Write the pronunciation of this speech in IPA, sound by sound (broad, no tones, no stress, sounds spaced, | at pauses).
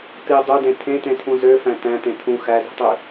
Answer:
t̪ i dˤ ø d ẽ t̪ʰ ẽ t̪ ẽ t̪ʰ ũ z ø f æ̃ t̪ æ̃ t̪ ẽ t̪ʰ ũ x æ z i̤ tˤ y